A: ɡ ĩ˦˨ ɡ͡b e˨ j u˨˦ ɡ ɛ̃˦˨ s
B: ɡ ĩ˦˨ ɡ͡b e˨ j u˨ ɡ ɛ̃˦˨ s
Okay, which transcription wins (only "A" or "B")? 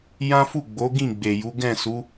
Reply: A